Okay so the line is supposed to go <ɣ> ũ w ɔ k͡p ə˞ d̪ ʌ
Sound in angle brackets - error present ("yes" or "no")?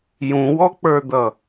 yes